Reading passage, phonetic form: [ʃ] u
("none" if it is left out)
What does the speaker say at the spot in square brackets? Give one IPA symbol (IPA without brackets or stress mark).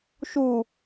ʃ